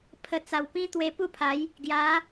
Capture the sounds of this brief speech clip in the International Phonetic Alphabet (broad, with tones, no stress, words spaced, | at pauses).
pʰə˨˩ t͡sa˨˩wpĩ˦ t̪we˧pu˥˧pʰa˨˦j | ɡja˨˦